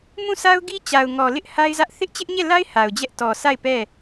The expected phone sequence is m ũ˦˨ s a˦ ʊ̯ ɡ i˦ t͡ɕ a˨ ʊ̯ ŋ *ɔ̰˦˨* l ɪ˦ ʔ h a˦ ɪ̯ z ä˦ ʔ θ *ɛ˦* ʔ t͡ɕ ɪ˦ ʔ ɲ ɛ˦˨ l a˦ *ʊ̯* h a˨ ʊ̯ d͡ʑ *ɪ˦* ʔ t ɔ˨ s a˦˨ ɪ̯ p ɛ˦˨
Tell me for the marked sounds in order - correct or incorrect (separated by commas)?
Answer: incorrect, incorrect, incorrect, incorrect